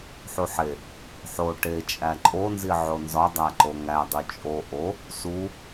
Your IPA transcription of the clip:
ħuħe | ħo ʈe t͡ʃʼæǃʼonzi ʕonzɒ dˤæǃoŋædˤu t͡ʃʼo ʔo | su

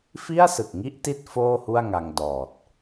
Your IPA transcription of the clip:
fi˥˩a̯sɯ˨˩k̚ŋi˦˥ʔti˦˥t̚ foː˥˩hu˥˩a̯ŋa˧ŋ dɔː˨˩t̚

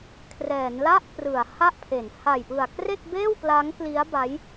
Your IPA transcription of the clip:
kʰrɛː˩˦nla˥˩ʔprɯ˩˦a̯ ha˥˩ʔpʰe˩˦n ha˨˩jpɯ˨˩a̯ kre˥˩k̚beː˥˩wpla˦˥ŋ kli˦˥a̯ba˦˥j

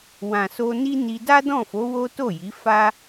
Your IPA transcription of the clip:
wã˨so˧ni˦ni˧ da˦dɔ̃˦˨fo˨˦ wo˦ to˦˨ji˨˦fa˦

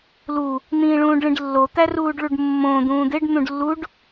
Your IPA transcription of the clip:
lu | n̪ĩːɭũːɖɭĩɖlːo t̪æruːɖɭuɖmːõ d̪ũːd̪eɖ n̪ũɖlːuɖ

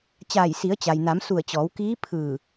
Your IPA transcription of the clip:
t͡ɕaː˧˩jsi˩˧ə̯ t͡ɕa˩jna˩˧msu˧˩ə̯ t͡ɕɔː˩˧wkiː˧˥pʰɯː˧˩

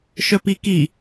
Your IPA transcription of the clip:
ʃœpiki

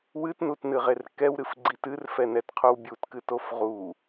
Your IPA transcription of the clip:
wɨtnutnɨʁer kɛwɾɨfɡ͡ǀit ɨrfɛnɛtqʰow bʲutkɨtof ʁu

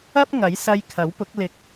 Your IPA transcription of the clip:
ɐ˥p̚ ŋɐ˨˥jsɐ˧j kʰɐ˨˥wpʊ˨˥k̚ lɪ˨k̚

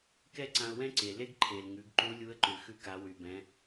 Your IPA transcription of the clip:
kɛ˥ǀã˧ʊ̯wɛ̃˥ǀe˩ le˥ɡǃʰe˩l ŋʉ˩˧ɡǃu˧˥lʲu˧˥ə̯ǃʉ˩ xʉ˧ka˩˧wy˩bɛ̃˩˧

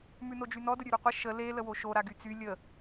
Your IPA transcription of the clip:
mʉnod͡ʒynɔ dəɾʲʉɾʉqʷə ʃə le ləwoʃo ɾaɡyt͡sy lʲə

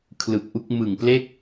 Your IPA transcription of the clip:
kʰlɯ˨˩k̚ʔu˦˥k̚ mɯ˨˩ŋple˥˩k̚

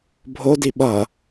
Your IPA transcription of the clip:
bʱodi ɓʌ

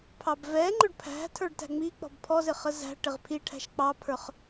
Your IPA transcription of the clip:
pʰɑbvɛŋ͡ǃʊɖ pʰæ̤ tʰə˞ɖtæ̤ŋ͡mik͡pɔ̤b pʰɔzɪ χəzæ̤ʈɪʁ pʰiʈʰæ̤ʃ k͡pɑpʰə˞χ

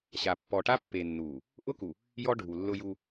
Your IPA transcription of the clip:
ɕa˨ pːɔ˨ʈa˦pːe˨ nːu˨ | ʔʊ˦ku˨ | jɔ˦ɖʱu˨lːʊ˦ju˦

